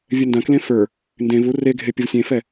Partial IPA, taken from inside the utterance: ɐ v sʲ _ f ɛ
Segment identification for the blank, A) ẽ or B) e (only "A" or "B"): A